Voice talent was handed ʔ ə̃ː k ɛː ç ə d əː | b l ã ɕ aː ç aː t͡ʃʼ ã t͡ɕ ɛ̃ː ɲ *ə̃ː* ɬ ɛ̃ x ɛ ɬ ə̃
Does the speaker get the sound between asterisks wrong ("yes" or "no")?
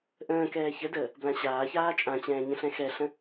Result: yes